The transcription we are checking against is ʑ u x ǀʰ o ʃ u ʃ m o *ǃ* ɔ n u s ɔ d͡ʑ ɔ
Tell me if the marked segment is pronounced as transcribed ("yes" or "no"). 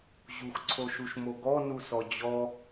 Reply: no